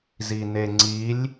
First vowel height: high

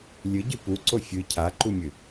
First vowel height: high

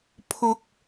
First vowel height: high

